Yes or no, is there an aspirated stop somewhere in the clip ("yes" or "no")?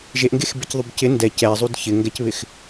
no